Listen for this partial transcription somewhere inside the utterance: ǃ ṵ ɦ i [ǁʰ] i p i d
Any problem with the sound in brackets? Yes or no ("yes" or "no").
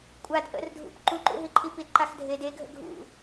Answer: yes